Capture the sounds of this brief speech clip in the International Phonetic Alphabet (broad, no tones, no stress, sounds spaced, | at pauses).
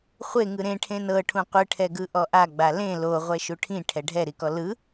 χʷ e ŋ ɯ ɾ ẽ ʈʰ ẽ n ɤ ʈʰ ũ qʷ ɯ ʈʰ ɛ ɡ ɯ ʔ ɔ ʔ a ɡ͡b a l ẽ l o ʁʷ ɛ ʃ u ʈʰ ĩ ʈʰ ɛ ɖʱ ɛ ɾ i k ɔ l ɯ